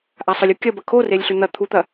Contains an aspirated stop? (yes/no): yes